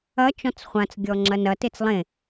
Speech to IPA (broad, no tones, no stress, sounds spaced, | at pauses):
ɐ t͡ʃ ɔ̃ t͡s χʷ ã t͡s ɡʲ ɔ ŋ͡ǁ ɐ n ɐ t e t͡s lˠ ẽ